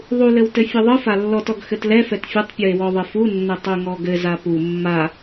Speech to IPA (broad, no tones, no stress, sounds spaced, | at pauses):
ðˤ u l ɘ w t ɘ fʲ ɘ ðˤ ɯ f a lː ɔ t ɔ ɡ x ɘ t l ɛ f ɛ t fʲ ɘ tˤ pʲ ɯ e̯ w ɔ ðˤ ɘ f u nː ɘ tˤ u ŋ ɔ ɡ ɘ z a p u mː a